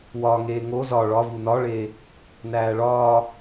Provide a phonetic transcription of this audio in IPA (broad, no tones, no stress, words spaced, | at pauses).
wɒŋeː ŋo zɒ ɭɒvu nɒɭeː | næːɭɒː